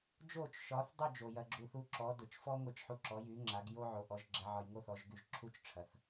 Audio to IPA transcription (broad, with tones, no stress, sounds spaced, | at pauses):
d͡ʒ o˥˩ t͡ʃ ʃ ɒ˩˥ θ dˤ y˥˩ d͡ʒ o˩ j ɐ˧ ɡ͡ǁ u˧ θ u˧ ǁ ɔ˩˥ d ʊ˩ t͡ʃ f ɔ˥ ŋʷ ɛ˧ t͡ʃ ħ u˧ ǁ ɔ˩˥ j y˩˥ ŋ͡ǁ a˩˥ ɡ j o˥ ʕ o˩˥ ʔ ɔ˩˥ ʒ ɡ͡ǁ ɛ˩˥ ʕ ɒ˧ j ŋ o˥ θ ɔ˩˥ ʒ ɡ y˧ ʒ ǁʰ u˥ t͡ʃ ʈ͡ʂʰ ɐ˩ θ